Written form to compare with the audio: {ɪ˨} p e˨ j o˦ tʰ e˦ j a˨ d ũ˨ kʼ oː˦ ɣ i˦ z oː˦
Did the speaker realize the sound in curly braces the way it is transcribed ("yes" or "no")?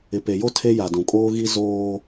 yes